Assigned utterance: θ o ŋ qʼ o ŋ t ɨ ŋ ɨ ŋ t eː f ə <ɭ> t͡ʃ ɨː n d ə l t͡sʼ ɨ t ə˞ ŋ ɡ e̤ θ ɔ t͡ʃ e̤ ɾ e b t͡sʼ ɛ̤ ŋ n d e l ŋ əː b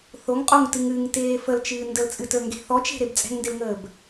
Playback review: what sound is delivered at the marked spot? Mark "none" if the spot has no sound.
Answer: l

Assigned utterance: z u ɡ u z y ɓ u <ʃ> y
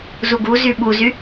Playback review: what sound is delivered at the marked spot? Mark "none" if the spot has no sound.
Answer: z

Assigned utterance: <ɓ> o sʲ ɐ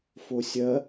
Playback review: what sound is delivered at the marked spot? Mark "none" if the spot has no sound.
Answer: f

